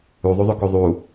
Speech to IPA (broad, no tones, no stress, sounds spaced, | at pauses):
u ðˤ u ðˤ ʉ k u ðˤ u